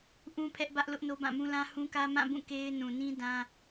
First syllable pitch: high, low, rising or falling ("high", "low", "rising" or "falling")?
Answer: high